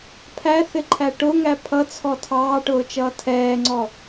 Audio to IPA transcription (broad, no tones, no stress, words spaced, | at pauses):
pʰæθɪǃʰæ ʈʊŋæ pʰʌt͡sʰɔ tʰɑːʈʊːt͡ʃʌː tʰɛːŋ͡ǀɔ